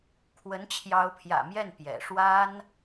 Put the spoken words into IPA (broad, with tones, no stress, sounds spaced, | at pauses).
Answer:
kʰ w ə˧˥ n t͡ɕʰ j ɑ˧˥ ʊ̯ pʰ j ä̰˨˩ m j ɛ˥˩ n p j ɛ̰˨˩ ʂ w a˥ n